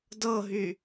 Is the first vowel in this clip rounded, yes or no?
no